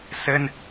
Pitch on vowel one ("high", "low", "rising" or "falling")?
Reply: high